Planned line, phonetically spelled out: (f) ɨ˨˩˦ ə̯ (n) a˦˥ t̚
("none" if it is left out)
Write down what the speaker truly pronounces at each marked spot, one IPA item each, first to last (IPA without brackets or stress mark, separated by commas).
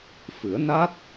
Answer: f, n